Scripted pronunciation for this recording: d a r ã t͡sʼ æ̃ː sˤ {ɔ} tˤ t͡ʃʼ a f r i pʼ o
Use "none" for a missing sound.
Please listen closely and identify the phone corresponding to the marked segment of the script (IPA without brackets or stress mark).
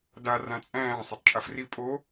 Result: ʌ